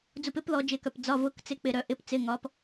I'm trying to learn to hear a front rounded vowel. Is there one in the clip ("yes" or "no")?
yes